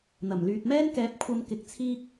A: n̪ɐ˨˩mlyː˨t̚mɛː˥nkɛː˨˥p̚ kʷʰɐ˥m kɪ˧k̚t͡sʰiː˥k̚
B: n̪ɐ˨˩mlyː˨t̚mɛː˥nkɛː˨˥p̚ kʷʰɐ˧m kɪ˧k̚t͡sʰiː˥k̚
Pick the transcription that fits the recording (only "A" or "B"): A